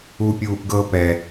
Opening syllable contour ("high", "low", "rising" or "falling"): high